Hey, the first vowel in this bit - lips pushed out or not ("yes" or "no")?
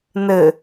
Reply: no